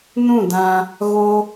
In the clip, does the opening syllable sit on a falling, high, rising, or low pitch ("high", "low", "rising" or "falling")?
falling